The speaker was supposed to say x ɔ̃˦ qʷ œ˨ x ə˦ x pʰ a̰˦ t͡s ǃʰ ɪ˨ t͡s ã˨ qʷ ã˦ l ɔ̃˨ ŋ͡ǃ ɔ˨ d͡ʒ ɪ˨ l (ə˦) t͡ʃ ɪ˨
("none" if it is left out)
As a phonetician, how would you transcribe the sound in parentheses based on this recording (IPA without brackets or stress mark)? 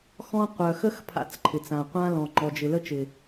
ə˦